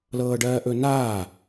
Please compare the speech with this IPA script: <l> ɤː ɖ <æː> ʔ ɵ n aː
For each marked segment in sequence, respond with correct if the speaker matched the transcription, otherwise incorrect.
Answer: correct, incorrect

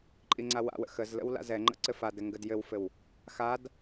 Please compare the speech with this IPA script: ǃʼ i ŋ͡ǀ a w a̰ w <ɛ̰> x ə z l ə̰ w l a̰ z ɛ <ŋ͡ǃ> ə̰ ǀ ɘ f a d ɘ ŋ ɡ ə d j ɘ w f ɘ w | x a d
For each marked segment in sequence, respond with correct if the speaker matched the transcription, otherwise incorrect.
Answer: incorrect, correct

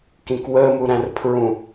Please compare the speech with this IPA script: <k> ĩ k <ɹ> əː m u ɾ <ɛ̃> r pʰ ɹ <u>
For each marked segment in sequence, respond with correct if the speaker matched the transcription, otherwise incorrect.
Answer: correct, incorrect, incorrect, incorrect

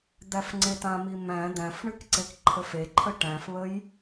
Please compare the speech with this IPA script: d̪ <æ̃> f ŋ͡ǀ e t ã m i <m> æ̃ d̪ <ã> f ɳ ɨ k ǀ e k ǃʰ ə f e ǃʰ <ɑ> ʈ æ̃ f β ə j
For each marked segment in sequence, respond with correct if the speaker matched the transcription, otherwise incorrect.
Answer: incorrect, correct, incorrect, incorrect

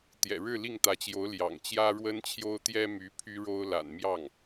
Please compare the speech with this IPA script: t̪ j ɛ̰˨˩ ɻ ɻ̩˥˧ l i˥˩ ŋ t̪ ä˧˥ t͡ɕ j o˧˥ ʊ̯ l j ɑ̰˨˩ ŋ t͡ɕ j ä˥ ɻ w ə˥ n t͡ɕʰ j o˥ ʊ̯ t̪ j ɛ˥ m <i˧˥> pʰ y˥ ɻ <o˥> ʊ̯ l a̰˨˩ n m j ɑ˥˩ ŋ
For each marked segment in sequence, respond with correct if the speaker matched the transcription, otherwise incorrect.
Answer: incorrect, correct

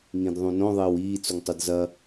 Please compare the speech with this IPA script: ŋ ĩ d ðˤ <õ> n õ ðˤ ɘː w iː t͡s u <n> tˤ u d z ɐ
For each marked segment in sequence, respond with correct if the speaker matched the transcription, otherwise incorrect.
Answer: incorrect, incorrect

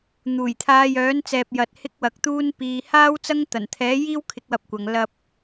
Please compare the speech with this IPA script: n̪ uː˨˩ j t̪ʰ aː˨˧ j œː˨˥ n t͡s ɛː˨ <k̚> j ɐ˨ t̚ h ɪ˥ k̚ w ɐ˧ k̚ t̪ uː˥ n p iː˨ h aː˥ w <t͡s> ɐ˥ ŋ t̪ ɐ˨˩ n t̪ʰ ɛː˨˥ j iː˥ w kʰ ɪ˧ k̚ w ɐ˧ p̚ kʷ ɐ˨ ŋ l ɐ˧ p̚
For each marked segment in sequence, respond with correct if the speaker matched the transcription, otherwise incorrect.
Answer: incorrect, correct

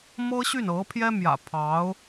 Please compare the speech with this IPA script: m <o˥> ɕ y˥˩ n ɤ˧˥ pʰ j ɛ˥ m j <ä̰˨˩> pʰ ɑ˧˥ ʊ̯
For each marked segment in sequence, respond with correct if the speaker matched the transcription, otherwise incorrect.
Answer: incorrect, correct

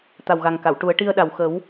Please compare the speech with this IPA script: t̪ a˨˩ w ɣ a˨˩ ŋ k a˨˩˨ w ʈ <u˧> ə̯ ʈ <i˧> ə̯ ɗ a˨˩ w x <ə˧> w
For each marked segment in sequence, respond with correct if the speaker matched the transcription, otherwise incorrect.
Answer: incorrect, correct, incorrect

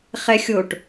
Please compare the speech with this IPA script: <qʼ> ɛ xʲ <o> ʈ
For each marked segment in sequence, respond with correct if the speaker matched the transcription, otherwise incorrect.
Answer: incorrect, correct

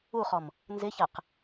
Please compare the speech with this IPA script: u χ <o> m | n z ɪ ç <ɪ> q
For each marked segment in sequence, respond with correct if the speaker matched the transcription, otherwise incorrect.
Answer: incorrect, incorrect

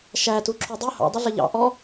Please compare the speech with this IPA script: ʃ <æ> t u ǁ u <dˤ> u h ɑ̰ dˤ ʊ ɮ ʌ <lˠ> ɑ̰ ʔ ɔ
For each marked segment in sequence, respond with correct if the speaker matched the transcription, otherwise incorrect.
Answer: correct, correct, incorrect

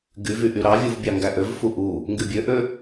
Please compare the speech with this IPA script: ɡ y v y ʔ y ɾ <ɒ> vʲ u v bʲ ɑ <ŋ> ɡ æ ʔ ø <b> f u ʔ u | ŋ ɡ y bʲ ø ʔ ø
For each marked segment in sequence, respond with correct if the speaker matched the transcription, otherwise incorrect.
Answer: incorrect, correct, incorrect

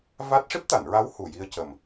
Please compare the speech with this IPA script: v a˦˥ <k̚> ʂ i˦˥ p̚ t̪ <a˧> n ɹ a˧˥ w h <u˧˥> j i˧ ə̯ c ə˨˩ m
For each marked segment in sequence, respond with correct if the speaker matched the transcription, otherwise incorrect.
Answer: incorrect, incorrect, incorrect

